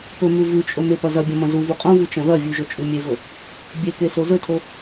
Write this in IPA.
p ɵ m ʉ v ʉ t͡ʃʼ ɵ m e p ɐ z ɐ bʲ ɐ̃ m ɐ̃ z u v u qʼ õ v u t͡ʃ ɐ̃ ð ɐ vʲ ʉ ʒ ɵ t͡ʃʼ ʉ mʲ e v ɵ | bʲ e k e s o z ɵ tʰ o

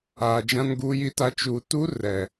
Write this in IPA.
aː˨ d͡ʒ ã˦ n ɡ uː˦ j i˦ t a˦ t͡ʃ u˨ t u˦ r ɛ˨

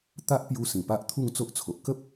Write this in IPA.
t̪ a˦ ʔ p j u˧ s ĩ˨˩ p a˦ ʔ t̪ʰ u˥˧ ŋ t͡s o˦ ʔ t͡sʰ o˨ ʔ k ə˦ p̚

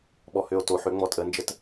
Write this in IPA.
ɓ ɔ h ø o̯ t o ħ ø ŋ͡m ɔ tʼ ə n d͡ʒ ə t

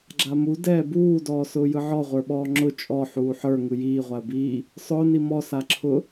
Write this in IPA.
ɡ͡ǁ a m u d ɛː b uː d ɔː s ʊː j ɯ ʕ ɔ ʁʷ ə˞ ɓ ɔː ŋ͡ǁ ʊ t͡ʃʼ ɔ ħ uː ħ ə˞ ŋ ɯ j iː ʁʷ a ə̯ b iː | sˤ ʊː n i m ɔ s a ǁʰ ʊ

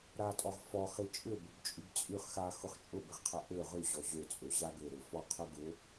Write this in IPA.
ɾ a tʼ ɔ ʁ f ɔ χ i t͡ʃʼ ʏ b ʊ b t͡ʃʼ y b t͡sʼ y χ x a x ʊ χ t͡ʃʼ ʊ b ɪ ʁ qʰ ɐ ʔ ø ʁ y ʑ ɔ ʑ ø t͡sʼ ø ʑ a ɡ ø ɾ ø f ɔ qʰ ø ɡ ʊ

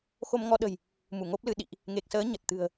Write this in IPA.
x o˧ m ŋ ɔ˧ ɗ ə̤˨˩ j | m u˧˩ ŋ o˦˥ p̚ l ɨ˨˦ ɗ ḭ˧˨ ʔ | ŋ e˨˩ k̚ s əː˨˦ ɲ ə˨˩ t̚ t̪ ɨ̤˨˩ ə̯

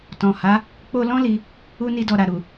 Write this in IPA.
t ɔ̃˨ h a˨˦ | k͡p o˧ l ɔ̃˦ l i˧ | u˧ n i˧ d ɔ˨ ɾ a˨ ɾ u˨

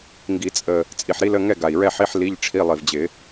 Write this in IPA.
ŋ ɡ i˨˩˦ t͡sʼ ə˨˩ | t͡sʼ i˨˩ ħ ɾ i˥ l ə˧˥˧ ŋ ɛ˥˨ ɡ a˨˩ i̯ ɹ ɛ˥˨ ħ i˧˥˧ ħ l i˧˥˧ ʎ ʈ͡ʂʰ i˧˥˧ lˠ i˨˩ v d͡ʑ ɪ˨˩˦

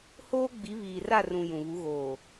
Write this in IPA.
h oː˦ ɡ͡b i˨˦ β iː˨ r a˦˨ r ũ˨ j ũ˨ β u˨˦ ɣ oː˨

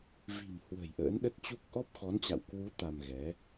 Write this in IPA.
v i̤˨˩ m h w ə̤˨˩ j ʔ ə̰ː˧˥ n ɗ ə˦˥ t̚ t͡ɕ u˦˥ k̚ ʔ ɔ˦˥ p̚ x ɔ˨˦ n t͡ɕ a̰˧˨ w k w u˨˦ t̪ a˧ m ɣ ɛ˨˦

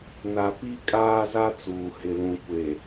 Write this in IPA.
n a˨ p i˦ kʼ aː˦ z a˦ t͡s uː˨ h ɪ˨ l ũ˨ kʷ e˨

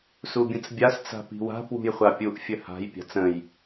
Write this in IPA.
s u bʲ ə̃ t͡s bʲ a s t͡s a̤ p i̤ w a̤ p w ṳ j χʷ a pʲ u ʔ fʲ ə h a̤ j pʲ a̤ t͡s ə̃ j

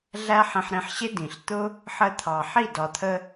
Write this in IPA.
ɮ æ˦ ħ ĩ˧ ħ ɾ ĩ˧ ħ ɕ ɪ˦ d ĩ˨ ɬ t̪ ʊ˦ | ħ əː˧ t̪ʰ ɑ˨ ħ i˦˨ d ɒ˨ t̪ʰ ə˧

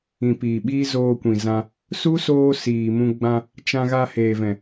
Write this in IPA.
ĩ˨ p iː˨ ɓ iː˦ z oː˧ kʷ ĩ˨ z ã˧ | s u˦ s oː˧ s iː˨ m ũ˧ ɡ͡b ã˧ | t͡ʃ ã˧ ɣ a˧ h eː˨ v ɛ̃˨

